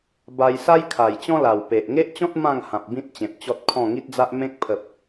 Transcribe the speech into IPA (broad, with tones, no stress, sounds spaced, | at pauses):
b a˧ j s a˦ j kʰ a˨˩ j t͡ɕ ɔ̃˦ l a˨˩ w p e˨ ʔ ŋ e˦ ʔ t͡ɕ ɔ̃˦ t̚ m ã˥˧ ŋ h ã˨ p̚ b ĩ˦ t̚ t͡ɕ ẽ˨ p̚ t͡ɕ ɔ˦ t̚ kʰ ɔ̃˥˧ ŋ i˦ t̚ d͡z a˦ ʔ m ẽ˦ k̚ pʰ ə˨ p̚